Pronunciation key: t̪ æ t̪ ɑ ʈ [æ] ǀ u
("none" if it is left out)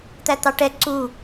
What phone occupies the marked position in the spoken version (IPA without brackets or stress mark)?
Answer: ɛ